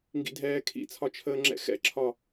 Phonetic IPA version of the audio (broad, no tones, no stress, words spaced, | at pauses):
ŋɡḭdʱɛːkʰḭt͡sʰɒ t͡ʃʰəːŋ͡ǁɛ̰xɛ̰ǁʰɒ